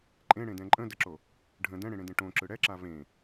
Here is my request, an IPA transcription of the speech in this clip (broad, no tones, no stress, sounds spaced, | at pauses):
ǃʼ ẽ ɽ ẽ d ɛ̃ ǃʼ ə̃ d ə ǁ o | ɖʱ ə̃ d ɛ̃ ɽ ẽ ɽ ẽ d ẽ ʈ õ ǁ ɯ ɽ ɛ ǁ a v ẽ